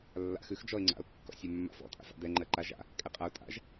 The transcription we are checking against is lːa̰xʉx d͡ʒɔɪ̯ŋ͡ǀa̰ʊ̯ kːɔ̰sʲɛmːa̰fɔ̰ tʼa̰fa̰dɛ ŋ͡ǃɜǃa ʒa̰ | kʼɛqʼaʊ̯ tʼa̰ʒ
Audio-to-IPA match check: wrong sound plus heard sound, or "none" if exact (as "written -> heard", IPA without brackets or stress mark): none